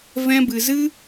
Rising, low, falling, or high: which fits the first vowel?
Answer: high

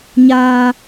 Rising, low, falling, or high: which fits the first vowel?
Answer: high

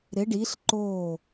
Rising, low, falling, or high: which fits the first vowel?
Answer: rising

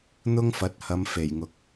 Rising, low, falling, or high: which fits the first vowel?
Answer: high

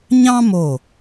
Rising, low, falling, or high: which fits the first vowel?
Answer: high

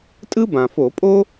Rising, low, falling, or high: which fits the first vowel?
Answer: high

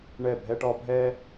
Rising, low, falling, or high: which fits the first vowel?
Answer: falling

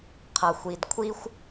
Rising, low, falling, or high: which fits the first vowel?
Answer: low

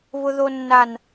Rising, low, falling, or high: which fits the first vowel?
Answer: high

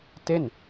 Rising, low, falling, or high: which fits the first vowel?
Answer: falling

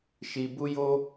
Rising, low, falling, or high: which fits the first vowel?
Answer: low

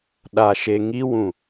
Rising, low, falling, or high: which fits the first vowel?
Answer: low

